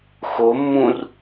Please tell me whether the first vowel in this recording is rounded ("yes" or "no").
yes